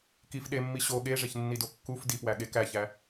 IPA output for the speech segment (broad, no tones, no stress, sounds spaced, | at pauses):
k i f ɗ e mː i ɕ o ɠ e ʐ e ç nː i d o kː u f d i p w æ ɠ e k æ ç æ